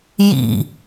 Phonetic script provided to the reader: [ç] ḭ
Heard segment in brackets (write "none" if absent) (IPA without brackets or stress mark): j